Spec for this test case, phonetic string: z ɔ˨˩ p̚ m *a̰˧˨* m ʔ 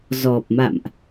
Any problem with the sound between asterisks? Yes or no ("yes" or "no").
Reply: no